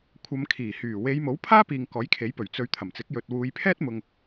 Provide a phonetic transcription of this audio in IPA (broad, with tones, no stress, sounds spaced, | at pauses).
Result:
kʷʰ ɐ˨˧ m kʰ iː˨˩ h yː˨˩ w e˨˧ j m o˨˥ w pʰ aː˥ p iː˨ ŋ k ɔː˨˥ j kʰ e˨˥ j p ɵ˨˩ ɥ t͡s ɵ˨˧ ɥ t̪ʰ ɐ˨˩ m t͡s ɪ˨˥ k̚ j ɵ˨ t̚ w uː˨˧ j pʰ ɛː˥ t̚ m ʊ˧ ŋ